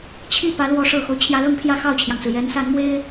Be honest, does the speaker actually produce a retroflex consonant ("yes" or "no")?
yes